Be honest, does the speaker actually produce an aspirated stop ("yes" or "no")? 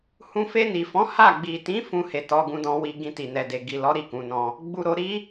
no